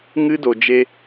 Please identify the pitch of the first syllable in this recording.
high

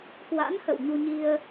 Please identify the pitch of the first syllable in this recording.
rising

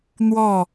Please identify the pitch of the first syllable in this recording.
falling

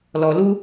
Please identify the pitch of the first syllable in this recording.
low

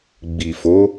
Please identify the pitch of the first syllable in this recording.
low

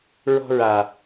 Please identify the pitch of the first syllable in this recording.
falling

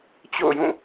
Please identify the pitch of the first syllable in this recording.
falling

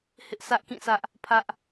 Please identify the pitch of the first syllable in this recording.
high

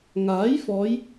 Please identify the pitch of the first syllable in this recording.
rising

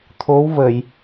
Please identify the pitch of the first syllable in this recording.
rising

